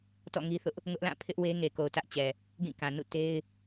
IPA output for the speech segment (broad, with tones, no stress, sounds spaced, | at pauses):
t ɔ̰˦˨ ŋ i˦ θ ʊ˦ ʔ | ŋ ʊ˦ ʔ l ã˦˨ pʰ ɪ˦ ʔ w e˦ ŋ e˨ k o˨ ʊ̯ t ä˦ ʔ t͡ɕ ɛ˨ | ɡ ĩ˦˨ k ã˨ n ṵ˦˨ t e˦ ɪ̯